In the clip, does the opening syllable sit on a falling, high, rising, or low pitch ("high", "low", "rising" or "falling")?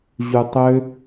low